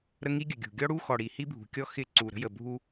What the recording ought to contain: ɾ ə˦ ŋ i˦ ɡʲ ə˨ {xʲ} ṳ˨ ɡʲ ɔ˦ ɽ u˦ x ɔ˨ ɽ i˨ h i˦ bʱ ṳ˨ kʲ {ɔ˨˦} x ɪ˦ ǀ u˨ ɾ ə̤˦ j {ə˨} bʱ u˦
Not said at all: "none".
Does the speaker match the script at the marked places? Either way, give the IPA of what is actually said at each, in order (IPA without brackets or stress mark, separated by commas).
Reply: ɡʲ, ɔ˦, ə˨